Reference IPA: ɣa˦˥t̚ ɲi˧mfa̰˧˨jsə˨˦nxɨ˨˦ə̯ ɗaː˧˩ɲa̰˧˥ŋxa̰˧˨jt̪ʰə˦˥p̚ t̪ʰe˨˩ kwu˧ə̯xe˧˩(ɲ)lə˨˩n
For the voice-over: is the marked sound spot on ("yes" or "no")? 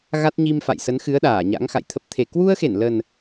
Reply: no